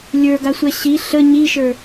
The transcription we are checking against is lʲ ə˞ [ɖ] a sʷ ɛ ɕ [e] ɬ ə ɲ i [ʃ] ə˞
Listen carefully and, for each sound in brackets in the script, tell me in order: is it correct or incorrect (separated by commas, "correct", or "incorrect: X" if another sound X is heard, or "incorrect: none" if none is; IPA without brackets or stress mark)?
incorrect: ɡ, incorrect: i, correct